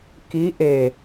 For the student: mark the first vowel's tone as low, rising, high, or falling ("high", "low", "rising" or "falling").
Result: rising